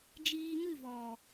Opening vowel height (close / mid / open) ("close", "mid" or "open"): close